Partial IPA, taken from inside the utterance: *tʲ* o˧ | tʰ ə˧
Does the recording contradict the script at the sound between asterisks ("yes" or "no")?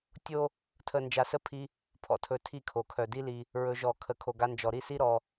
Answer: no